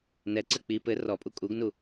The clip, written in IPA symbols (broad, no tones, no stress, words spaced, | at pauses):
nɛǀɘ k͡pi pɘ rɔpʼu kʼuɡnu